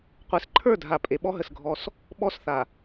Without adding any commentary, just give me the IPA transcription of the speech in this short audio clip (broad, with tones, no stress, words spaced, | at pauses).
qʷe˨s ǃʰə˞˦˨dʱa˨ pʼe˨ɓɔ˦ ɦə˨sɡʱɔ˦s | ɓɔ˦sθa˨